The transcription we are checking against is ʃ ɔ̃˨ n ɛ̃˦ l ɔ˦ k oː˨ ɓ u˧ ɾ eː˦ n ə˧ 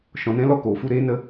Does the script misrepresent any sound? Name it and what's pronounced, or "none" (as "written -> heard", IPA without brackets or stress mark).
ɓ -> f